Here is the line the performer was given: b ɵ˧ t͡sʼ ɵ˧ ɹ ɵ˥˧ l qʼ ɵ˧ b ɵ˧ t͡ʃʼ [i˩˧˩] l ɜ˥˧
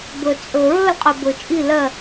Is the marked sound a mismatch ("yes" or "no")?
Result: yes